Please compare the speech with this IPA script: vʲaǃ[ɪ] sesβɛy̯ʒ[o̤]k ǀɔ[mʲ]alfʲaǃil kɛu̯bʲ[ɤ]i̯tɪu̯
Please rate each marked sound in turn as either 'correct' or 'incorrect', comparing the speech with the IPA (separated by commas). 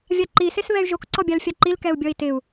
incorrect, incorrect, incorrect, incorrect